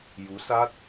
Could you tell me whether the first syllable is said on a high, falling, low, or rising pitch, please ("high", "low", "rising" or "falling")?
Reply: rising